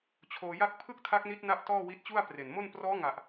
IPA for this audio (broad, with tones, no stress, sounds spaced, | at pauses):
t͡ɕʰ oː˧ j a˥˩ k̚ pʰ ɯ˥˩ k̚ tʰ a˦˥ k̚ n i˦˥ t̚ n a˦˥ ʔ t ɔː˥˩ w i˦˥ t̚ t͡ɕ u˥˩ a̯ p r e˨˩ n m o˥˩ n p r ɔː˦˥ ŋ a˨˩ ʔ